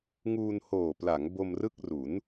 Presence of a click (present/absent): absent